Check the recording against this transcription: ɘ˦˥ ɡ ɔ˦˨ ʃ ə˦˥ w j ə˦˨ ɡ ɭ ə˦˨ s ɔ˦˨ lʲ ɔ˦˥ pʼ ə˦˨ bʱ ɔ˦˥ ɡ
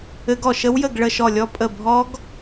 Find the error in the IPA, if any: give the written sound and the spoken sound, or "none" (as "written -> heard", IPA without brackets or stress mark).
s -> ʃ